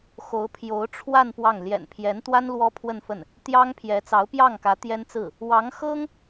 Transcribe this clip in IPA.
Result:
x o˧˥ ʊ̯ pʰ j o˧˥ ʊ̯ ʈ͡ʂʰ w a˥˧ n p w ɑ˥˩ ŋ l j ɛ̰˨˩ n pʰ j ɛ˧˥ n t̪ w a˥ n l w ɔ˥ pʰ w ə˥˧ n f ə˥˩ n | t̪ j ɑ˥ ŋ pʰ j ɛ˧˥ t͡s ɑ˧˥ ʊ̯ p j ɑ˥˩ ŋ k ä˧˥ t̪ j ɛ˥ n t͡s ɹ̩˥˩ | w ɑ˧˥ ŋ x ɤ˥ ŋ

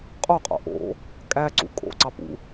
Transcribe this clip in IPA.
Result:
qʼ o qʼ o̰ ʔ o̰ | kʼ æ ǀ ṵ kʼ o̰ ǀ ɑ p ṵ

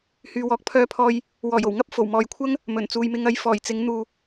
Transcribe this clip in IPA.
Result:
h yː˧ w ɔː˧ k̚ pʰ œː˥ pʰ ɔː˥ j | w ɔː˨˩ j o˨˩ w ŋ ɐ˥ p̚ f o˨˩ w m ɔː˨ j kʷʰ ɐ˥ ŋ | m ɵ˨˩ n t͡s uː˨ j m ɪ˧ ŋ ɐ˧ j f ɔː˨˩ j t͡s ɪ˨˥ ŋ n̪ uː˨

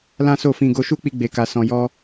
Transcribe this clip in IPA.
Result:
l ã˦ s o˦˨ f ĩ˧ ɡ o˧ ʃ u˦ k͡p i˧ ɡ͡b e˨ k a˨ s ɔ̃˨ j ɔ˧

